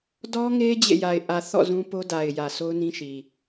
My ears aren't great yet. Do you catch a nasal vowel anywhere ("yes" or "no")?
yes